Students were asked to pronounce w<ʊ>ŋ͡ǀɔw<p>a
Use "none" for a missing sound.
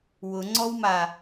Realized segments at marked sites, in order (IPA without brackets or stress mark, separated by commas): ʊ, m